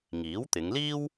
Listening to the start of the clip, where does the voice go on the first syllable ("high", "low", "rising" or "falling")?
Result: rising